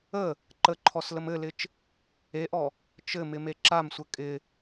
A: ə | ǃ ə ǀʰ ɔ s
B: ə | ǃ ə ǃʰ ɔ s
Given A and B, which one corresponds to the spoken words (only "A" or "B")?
B